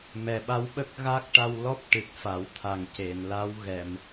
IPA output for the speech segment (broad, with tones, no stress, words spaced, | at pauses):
mɛ˨˩ɓa˧˥w ɓə˦˥k̚ ɣa˦˥k̚ʈa˧wlɔ˦˥p̚ ʈɨ˨˩k̚fa˨˩˦wt̪ʰa˨˩ŋ ce˨˩˨n la˧˥wɣɛ˨˩˨m